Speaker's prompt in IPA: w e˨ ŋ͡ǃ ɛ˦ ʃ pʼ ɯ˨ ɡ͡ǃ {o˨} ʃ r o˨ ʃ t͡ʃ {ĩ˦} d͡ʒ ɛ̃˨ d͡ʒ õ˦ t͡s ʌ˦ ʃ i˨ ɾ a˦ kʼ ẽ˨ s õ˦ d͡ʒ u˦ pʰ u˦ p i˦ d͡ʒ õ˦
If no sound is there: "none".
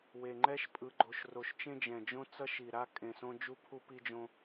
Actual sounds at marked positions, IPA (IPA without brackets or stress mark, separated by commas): o˨, ẽ˦